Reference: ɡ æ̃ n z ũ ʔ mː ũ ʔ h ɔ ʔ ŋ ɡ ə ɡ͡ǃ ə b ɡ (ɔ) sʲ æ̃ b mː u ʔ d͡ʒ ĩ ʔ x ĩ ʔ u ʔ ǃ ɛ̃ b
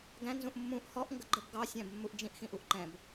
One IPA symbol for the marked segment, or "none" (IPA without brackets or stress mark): ɑ